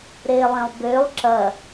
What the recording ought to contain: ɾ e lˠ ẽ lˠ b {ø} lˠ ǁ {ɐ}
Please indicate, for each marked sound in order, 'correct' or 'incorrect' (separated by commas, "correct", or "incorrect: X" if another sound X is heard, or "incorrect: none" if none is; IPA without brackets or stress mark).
correct, correct